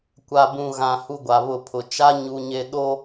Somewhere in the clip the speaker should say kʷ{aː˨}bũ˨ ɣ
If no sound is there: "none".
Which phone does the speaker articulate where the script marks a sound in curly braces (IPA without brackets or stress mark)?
a˨